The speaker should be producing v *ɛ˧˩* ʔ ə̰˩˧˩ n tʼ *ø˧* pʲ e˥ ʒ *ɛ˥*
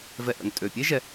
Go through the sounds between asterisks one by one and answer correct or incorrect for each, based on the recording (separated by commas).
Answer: incorrect, incorrect, incorrect